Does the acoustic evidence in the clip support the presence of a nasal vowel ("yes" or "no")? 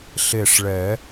no